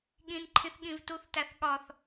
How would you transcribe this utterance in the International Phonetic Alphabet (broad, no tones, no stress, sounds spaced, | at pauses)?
ɠ ĩ n ǃʰ ĩ θ ɠ ĩ v t u θ t æ θ ɠ ɒ θ